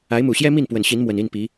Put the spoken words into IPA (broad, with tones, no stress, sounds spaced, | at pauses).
a˨˦ ɪ̯ m u˨˩ ɕ j ɛ˦ m i˥˨ n p w ə˨˩ n ɕ i˨˦ n m w ə˨˩ n i˥˨ n p i˨˦